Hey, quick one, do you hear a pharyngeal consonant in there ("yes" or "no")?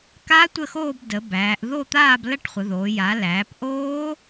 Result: no